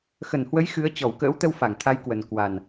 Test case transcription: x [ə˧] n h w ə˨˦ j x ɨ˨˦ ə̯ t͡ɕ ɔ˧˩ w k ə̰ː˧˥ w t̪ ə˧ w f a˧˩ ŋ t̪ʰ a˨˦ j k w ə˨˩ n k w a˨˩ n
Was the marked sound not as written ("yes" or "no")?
yes